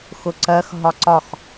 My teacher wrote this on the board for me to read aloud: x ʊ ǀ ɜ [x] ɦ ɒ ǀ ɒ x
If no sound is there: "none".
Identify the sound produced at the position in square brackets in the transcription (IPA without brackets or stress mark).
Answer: x